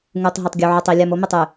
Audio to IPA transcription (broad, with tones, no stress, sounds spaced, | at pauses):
ŋ u˨ tˤ ɦ ʉ˨ tˤ ɡʲ u˨ ʕ ɵ˨ tˤ i˨ lʲ a˨ m o˦ m ɵ˨ tˤ ʉ˨